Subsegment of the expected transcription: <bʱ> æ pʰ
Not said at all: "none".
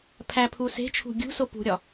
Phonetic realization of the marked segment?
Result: pʰ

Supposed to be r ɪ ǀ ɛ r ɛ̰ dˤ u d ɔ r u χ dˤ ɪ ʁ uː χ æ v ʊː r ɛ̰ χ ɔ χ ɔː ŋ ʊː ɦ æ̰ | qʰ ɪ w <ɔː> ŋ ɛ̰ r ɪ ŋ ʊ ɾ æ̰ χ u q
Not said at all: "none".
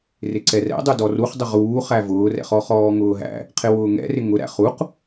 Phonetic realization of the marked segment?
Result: ʊː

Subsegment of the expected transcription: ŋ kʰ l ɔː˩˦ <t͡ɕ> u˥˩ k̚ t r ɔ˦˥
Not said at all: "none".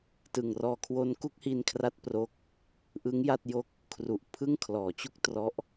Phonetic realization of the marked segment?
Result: t͡ɕ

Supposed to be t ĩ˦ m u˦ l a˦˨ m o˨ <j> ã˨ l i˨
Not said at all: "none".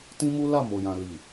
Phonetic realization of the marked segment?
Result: j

